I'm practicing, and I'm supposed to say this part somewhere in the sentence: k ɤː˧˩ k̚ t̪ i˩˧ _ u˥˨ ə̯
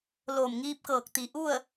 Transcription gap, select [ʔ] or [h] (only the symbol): ʔ